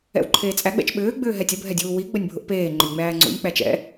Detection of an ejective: present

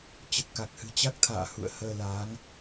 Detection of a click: absent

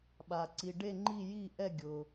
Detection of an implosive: present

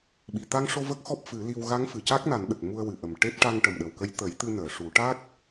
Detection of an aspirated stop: absent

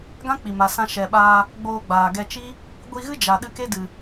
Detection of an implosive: present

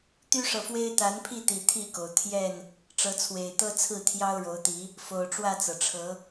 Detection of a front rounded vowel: present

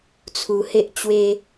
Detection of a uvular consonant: absent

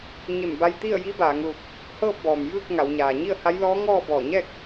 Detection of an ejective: absent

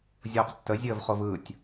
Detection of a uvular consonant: present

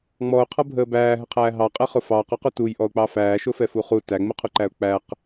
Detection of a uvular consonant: present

